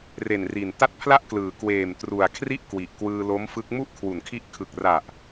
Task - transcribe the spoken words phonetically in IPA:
re˨˩nri˨˩n ta˥˩t̚pʰla˥˩ʔklɯː˩˦ kweː˨˩m tru˨˩a̯kʰri˥˩ʔ kwi˨˩ʔkwɯː˧lo˦˥mfɯ˦˥k̚ mu˥˩ʔkʰwu˨˩nkʰi˦˥ʔ kʰɯ˨˩k̚ra˨˩ʔ

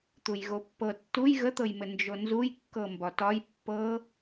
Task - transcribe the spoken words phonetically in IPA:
t̪ujɣopːɤ tːuj ɣət̪ɤjmɘ nd͡ʒonzuj kːɤmbɒtɒj pːɤ

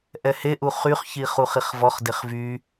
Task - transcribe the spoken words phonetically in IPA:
ʔɛheʔu χyχçi χuχiχvɔχdeχ vy

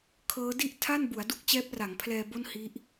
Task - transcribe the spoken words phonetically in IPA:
kʰɤː˦˥di˥˩ʔtʰa˥˩nbu˩˦a̯ du˦˥k̚t͡ɕɛː˦˥p̚ra˩˦ŋpʰlɛː˧ bo˥˩nhi˦˥ʔ

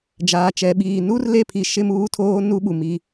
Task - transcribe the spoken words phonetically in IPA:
d͡ʒaː˨t͡ʃɛ˨ɓiː˨ nu˦rle˦˨pʰi˨ ʃɪ˦muː˦tʰoː˦ nu˦ɓu˨mi˦

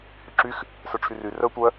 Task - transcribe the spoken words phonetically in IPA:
hyǁyx | sœʈ͡ʂʰyry rœ tʷœ

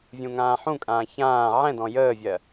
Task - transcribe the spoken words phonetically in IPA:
vʲũŋãːħũkʼãː çãː ʕɛ̃dɔ̃ jəːvʲɜ

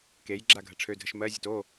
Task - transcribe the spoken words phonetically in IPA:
kej ɡ͡ǁaɡʱəʈ͡ʂʰødʱəʃ mɜzʲut o

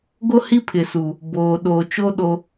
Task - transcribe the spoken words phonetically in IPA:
ɡo˦hi˦pʰɪ˨su˨ | boː˨ ɗoː˨t͡ʃo˦ ɗo˦

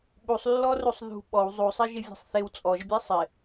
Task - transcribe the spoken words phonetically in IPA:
ɓusˤlːɔrusˤ ðṳ ɓɔw zˤusˤɪʒɪvʲe̤sˤ θɪw t͡sʼɔʒbʲɛ sˤɪ

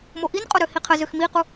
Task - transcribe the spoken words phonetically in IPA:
moʔinqʼo ɾøhiqʰə zøxmiqu

